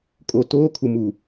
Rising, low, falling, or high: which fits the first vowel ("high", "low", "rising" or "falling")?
low